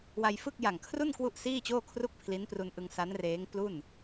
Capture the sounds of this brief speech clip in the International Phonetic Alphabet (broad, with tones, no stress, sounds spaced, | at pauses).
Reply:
w a˧ j f ɯ˥˩ k̚ j a˨˩ ŋ kʰ r u˥˩ n k w u˥˩ ʔ s iː˥˩ t͡ɕ oː˥˩ kʰ r u˥˩ k̚ pʰ l i˦˥ n p r u˧ n ʔ ɯ˧ ŋ s a˦˥ n r eː˦˥ ŋ p l u˥˩ n